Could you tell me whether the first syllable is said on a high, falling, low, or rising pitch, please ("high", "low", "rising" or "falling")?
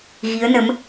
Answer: rising